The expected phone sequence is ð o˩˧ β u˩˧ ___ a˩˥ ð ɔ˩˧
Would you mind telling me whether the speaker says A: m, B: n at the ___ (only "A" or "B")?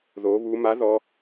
A